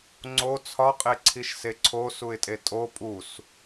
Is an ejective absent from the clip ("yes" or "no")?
no